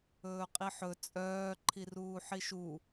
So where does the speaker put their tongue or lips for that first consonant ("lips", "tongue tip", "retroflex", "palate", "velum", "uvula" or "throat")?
uvula